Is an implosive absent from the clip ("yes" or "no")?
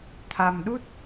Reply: no